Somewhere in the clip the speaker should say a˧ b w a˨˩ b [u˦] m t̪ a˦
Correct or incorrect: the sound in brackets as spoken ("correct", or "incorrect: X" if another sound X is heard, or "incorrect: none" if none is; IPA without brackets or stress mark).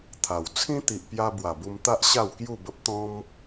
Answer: incorrect: u˧